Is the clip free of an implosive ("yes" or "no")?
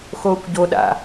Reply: no